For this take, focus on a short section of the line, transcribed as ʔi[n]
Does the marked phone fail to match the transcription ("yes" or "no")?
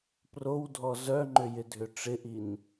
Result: no